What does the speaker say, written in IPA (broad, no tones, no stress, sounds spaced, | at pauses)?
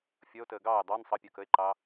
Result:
fʲ ʌ o̯ t əː ɡ ɑː e̯ dˤ ɑ n sˤ ʌ pʲ əː k ə e̯ ǃ ɑ